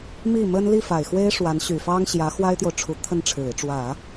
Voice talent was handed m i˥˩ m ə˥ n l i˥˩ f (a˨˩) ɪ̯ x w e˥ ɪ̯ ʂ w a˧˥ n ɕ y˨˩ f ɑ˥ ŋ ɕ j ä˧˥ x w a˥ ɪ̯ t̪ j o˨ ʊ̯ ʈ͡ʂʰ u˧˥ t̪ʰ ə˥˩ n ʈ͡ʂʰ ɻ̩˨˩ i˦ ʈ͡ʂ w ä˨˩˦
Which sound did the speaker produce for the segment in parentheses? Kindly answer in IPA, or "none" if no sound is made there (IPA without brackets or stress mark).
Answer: a˨˩